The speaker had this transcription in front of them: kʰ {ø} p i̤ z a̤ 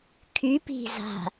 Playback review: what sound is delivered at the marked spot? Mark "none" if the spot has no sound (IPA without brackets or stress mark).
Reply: y